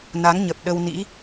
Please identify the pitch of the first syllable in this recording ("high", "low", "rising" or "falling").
rising